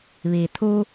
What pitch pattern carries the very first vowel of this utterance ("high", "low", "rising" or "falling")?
low